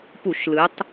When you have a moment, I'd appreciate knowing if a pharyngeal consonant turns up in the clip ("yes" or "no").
no